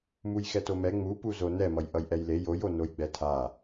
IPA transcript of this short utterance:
mujxɛtomɛ ŋ͡mupuzo nɛmʌj ʔʌjʔɛjle jojo nojɡ͡bɛtʰa

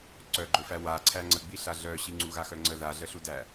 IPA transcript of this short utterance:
ǀœɡ͡ǃɵfæ wa ǀʰæŋ͡ǀəɡ͡biɬa ɮœɕi ŋ͡ǀuɣaxœŋ͡ǀə ðaɮəɬudæ

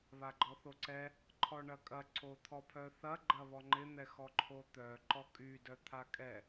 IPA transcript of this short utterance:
βaɡ͡ǃɔθoǀɛ | ǃʰɔɳɐkʼɐ ǀot̪ʰɔpʰœθɐ ɡ͡ǃɐβɔŋ͡ǃɪ n̪ɛxɔǃʰot̪œ ǃɔkʼy dœt̪ʰakʼɛ

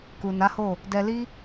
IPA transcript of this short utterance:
ku˨na˨˦ho˦˨ | dɛ˧li˦

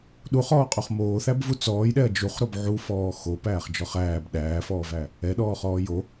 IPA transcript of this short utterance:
ɗuχɔːqʼuχ moːθæbvu t͡sɔːjɗɛɐ̯ d͡ʒuχɾob ʕufɔː xopæːχd͡ʒɔχ æːb ɗæːfɔːvæ | ɛɗɔːχɔː jo

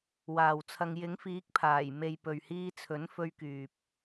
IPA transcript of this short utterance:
waː˨wt͡sʰɐ˧ŋ jɪ˨˥ŋfiː˨˥k̚ pʰaː˨˩jme˨j pɵ˨ɥhiː˧t͡sʰɵ˨˥nfɵ˧ɥ kyː˨p̚

